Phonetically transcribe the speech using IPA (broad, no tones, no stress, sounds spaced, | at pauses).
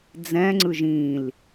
d͡z ɛ̃ ŋ͡ǀ ɯ ʒ ĩ l